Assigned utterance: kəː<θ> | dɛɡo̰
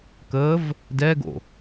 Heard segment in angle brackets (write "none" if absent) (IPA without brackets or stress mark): v